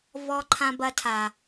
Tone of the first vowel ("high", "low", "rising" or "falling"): high